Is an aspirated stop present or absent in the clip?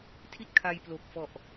present